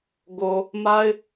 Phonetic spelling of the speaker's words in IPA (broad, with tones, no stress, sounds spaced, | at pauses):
ɡ o˨ | m a˦ ɪ̯